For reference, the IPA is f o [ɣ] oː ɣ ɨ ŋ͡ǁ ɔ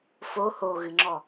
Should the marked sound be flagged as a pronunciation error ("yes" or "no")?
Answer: yes